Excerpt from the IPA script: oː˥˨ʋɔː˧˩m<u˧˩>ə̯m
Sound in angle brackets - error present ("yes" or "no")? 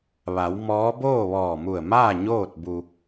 no